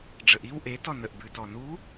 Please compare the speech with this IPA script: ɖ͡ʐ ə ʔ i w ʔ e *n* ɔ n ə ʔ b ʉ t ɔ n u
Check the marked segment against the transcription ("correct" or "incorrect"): incorrect